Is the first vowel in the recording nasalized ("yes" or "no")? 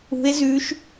no